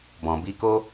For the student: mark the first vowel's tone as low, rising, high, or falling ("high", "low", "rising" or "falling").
low